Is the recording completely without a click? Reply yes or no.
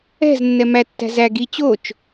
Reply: yes